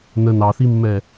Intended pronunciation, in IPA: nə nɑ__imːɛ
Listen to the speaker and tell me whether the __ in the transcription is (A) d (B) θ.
B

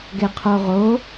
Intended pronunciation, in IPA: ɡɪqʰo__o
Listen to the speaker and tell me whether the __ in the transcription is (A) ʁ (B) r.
A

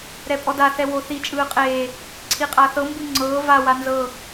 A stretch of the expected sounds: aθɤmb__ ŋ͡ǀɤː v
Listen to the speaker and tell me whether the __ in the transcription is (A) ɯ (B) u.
A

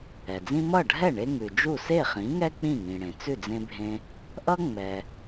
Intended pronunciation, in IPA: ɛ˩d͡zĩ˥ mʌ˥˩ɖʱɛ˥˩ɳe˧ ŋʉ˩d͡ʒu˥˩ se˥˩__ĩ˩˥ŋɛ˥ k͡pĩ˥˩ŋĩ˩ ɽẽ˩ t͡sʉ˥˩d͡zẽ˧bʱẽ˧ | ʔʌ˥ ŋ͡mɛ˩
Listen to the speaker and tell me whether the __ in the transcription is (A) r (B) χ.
B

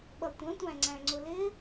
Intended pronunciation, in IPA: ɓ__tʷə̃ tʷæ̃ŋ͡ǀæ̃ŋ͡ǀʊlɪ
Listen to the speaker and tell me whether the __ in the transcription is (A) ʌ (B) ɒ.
A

